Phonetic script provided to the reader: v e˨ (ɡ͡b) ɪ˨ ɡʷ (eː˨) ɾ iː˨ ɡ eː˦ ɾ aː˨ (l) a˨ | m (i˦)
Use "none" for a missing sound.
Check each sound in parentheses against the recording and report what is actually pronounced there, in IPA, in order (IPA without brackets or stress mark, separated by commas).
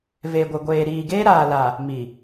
ɡʷ, eː˨, l, i˨